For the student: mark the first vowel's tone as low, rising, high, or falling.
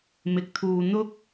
low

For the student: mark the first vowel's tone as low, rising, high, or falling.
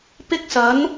high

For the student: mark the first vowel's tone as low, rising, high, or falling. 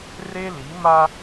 high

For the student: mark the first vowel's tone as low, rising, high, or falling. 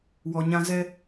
low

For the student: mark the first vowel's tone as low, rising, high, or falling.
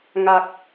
low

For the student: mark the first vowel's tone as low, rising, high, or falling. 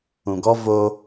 low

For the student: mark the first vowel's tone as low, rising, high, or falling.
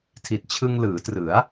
low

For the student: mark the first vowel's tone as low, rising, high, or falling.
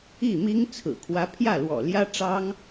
falling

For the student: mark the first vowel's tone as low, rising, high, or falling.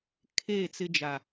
falling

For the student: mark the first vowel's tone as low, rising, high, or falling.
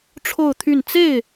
falling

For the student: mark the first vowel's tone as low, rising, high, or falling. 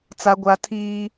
high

